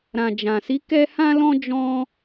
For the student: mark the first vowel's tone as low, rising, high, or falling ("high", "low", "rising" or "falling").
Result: low